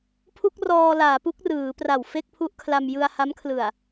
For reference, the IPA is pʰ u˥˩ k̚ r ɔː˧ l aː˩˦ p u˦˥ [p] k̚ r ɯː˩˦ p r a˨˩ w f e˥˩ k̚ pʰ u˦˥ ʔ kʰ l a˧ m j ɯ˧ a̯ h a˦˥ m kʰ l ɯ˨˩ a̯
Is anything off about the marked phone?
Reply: yes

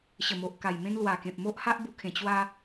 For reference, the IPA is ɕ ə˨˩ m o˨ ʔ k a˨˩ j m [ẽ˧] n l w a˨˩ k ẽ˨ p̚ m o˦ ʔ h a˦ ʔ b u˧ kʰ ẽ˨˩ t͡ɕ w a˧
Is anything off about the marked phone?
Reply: no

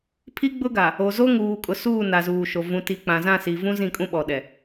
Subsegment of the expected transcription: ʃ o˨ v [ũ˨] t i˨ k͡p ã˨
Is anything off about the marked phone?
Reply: no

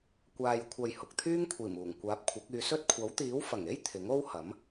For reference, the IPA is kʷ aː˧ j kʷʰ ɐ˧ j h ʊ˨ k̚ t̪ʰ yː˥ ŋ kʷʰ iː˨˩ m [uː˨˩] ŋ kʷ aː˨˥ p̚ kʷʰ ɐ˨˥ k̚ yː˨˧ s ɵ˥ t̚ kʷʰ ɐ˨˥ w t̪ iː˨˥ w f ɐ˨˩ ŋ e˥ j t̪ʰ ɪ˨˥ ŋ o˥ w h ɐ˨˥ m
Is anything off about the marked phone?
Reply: no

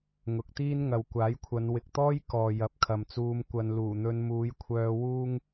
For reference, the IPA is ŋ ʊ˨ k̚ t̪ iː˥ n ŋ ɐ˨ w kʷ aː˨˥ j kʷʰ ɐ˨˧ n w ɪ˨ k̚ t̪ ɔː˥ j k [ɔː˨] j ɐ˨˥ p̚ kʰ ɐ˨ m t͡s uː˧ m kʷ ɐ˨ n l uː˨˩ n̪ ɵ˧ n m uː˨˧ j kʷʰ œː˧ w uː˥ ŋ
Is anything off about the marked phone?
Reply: no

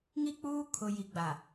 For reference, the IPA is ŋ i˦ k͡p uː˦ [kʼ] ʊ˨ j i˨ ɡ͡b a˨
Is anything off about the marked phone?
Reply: yes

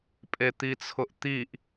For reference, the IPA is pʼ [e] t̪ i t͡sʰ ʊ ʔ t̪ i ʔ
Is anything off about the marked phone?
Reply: no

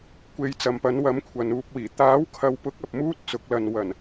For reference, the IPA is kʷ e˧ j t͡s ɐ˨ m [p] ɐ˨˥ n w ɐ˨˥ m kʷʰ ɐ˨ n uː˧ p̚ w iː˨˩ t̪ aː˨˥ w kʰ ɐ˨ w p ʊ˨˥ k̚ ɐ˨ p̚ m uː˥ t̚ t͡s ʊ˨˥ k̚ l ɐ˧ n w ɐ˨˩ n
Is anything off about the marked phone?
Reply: no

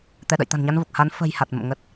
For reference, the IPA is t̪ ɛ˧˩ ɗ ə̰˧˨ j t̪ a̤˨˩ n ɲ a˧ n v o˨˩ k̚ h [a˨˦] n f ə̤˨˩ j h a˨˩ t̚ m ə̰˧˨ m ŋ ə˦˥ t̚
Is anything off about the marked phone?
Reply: no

